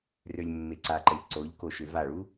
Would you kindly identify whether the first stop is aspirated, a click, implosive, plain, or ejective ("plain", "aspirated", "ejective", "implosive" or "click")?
click